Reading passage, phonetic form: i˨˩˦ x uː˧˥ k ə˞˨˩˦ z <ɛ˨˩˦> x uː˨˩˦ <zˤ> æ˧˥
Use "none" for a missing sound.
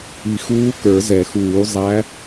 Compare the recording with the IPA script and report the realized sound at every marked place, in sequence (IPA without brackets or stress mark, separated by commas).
ɛ˨˩˦, zˤ